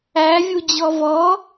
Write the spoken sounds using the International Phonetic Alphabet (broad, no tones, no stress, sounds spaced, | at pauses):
æ vʲ u d͡ʑ ɔ v ɔ